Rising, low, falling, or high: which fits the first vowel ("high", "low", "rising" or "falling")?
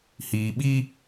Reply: low